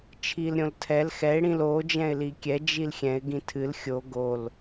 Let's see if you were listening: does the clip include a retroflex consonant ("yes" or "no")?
yes